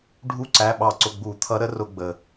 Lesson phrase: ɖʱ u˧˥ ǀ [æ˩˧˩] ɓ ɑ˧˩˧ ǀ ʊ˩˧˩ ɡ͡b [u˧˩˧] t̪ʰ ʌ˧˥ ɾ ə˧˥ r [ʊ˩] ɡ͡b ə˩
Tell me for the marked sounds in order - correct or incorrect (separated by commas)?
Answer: correct, correct, incorrect